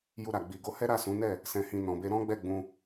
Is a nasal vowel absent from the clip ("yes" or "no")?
no